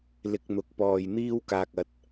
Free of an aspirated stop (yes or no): yes